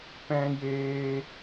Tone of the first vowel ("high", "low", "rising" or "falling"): high